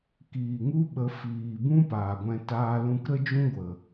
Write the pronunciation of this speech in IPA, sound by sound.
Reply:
k iː˨ ŋ u˦ ɓ ə˨˦ f iː˨ b ũ˦ p aː˨ ɡʷ ɛ̃˧ t aː˧ l ũ˧ k ɾ ə˦ d͡ʒ ũ˦ ɡʷ ə˨

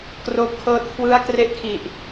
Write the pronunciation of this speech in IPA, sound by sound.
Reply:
k r oː˦˥ p̚ kʰ ɤː˥˩ t̚ kʰ w ɯ˦˥ a̯ k r e˦˥ ʔ kʰ i˨˩ ʔ

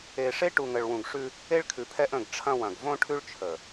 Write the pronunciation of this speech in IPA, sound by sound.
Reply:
e˨ ʂ e˦ ʈ u˨ ŋ ə˨ ɭ w ũ˨ ɡ ʂ ʉ˦ | e˦ ɭ kʰ ʉ˨ pʰ ɛ˦ ʔ ə̃˦˨ ɡ ʈ͡ʂʰ ɐ̃˦ w ɐ̃˨ ɡ v õ˦ ʈʰ ʉ˦ ɭ t͡ʃʰ ə˨

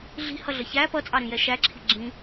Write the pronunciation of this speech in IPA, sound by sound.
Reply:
ɮ i̤ h ʌ ɮ ə ç æ p ʌ t͡sʼ ɑ ɾ ĩ j ɛ ʃ æ ǁʰ i̤ ɡ͡ǁ ĩ

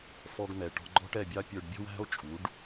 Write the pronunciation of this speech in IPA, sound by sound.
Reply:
f ɔ˧ ɡ n̪ ɛ˨ ʈ ɔ̤˧ ɡ͡ǃ ɔ̤˦ ʈ ɛ˦˨ bʲ ɑ˦ pʲ ə˞˧ ɖ bʲ ɔ̤˦ w æ̤˦ o̯ t͡ʃʼ u˨˦ ɖ

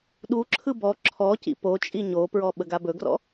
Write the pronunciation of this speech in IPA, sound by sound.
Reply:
ɗ u ǁʰ ɯ b ɔ ǁʰ ɔ c ḭ p o t͡ʃʼ i ɲ o p ɹ ɔ ɓ ə ɡ a b ɵ ɡ r ɔ̰

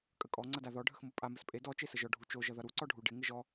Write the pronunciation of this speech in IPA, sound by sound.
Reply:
kʼ ə kʼ ɔ ŋ͡ǀ ʌ d a ð ɔ ɖʱ ə x m o pʼ a m ə s pʼ e d ɔ t͡ʃ e s ə ʒ ɔ ɖʱ u t͡ʃ o ʒ ʌ ð ʌ ɾ u ǀ ɔ ɖʱ u ɖ ɪ ŋ ɪ ʒ ɔ

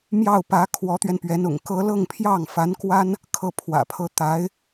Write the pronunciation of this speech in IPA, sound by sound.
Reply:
m j ɑ˥˩ ʊ̯ p ä˧˥ kʰ w ɔ˧˥ t̪ ɥ ɛ˧ n p ɥ ɛ˧˥ n ʊ̰˨˩ ŋ k ɤ˥ l ɤ˥˧ ŋ pʰ j ɑ˥˩ ŋ f a˧˥ n k w a˥ n | kʰ ɤ˥˩ pʰ w ä̰˨˩ pʰ ɤ˥ t̪ a˧˥ ɪ̯

